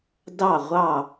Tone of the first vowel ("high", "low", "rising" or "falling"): falling